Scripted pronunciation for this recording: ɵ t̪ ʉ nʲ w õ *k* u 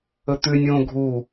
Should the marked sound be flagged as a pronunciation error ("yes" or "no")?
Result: yes